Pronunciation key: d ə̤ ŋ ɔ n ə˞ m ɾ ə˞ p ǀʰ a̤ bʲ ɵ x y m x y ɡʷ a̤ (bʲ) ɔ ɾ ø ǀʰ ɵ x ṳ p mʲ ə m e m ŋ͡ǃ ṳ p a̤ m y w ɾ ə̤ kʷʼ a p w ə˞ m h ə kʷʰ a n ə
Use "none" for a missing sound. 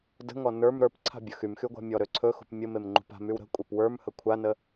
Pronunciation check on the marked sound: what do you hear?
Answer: mʲ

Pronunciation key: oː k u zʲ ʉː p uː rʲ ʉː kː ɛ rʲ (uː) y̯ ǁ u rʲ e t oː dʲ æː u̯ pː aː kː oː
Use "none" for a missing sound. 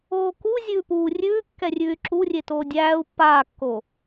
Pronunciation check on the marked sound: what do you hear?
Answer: ʉː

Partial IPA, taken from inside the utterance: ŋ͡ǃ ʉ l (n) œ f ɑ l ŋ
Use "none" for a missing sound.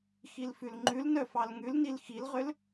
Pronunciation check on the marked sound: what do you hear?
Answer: n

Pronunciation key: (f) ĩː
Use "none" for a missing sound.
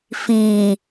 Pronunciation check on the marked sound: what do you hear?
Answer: f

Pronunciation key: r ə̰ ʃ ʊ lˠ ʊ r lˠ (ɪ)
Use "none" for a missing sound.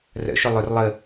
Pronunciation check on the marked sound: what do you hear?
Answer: ə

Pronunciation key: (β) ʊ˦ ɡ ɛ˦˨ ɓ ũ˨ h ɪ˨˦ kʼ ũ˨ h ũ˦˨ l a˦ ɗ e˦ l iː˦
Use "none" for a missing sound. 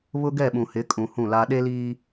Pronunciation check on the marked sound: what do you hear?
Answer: β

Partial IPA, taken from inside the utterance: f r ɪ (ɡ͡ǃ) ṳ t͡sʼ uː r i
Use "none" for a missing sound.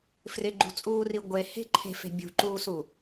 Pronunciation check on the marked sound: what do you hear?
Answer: ɡ͡ǃ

